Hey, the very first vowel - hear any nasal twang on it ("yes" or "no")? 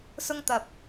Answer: no